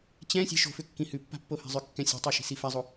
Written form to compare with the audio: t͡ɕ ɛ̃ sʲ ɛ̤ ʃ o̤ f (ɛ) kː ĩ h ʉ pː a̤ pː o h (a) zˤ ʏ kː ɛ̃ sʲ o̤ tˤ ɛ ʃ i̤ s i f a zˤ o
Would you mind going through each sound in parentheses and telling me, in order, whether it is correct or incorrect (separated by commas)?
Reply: incorrect, incorrect